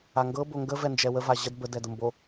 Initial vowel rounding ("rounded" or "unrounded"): unrounded